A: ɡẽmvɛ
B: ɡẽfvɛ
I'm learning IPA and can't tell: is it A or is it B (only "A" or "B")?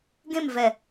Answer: A